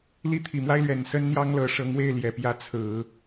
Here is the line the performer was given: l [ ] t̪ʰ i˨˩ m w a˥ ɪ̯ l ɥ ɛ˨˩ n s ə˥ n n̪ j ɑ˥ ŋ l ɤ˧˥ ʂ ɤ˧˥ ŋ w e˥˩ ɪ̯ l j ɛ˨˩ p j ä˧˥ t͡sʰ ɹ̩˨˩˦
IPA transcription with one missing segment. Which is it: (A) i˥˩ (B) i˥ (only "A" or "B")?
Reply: A